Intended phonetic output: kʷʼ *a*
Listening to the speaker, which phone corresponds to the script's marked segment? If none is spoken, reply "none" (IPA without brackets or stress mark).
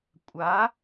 a